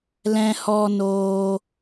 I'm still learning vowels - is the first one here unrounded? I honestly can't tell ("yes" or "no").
yes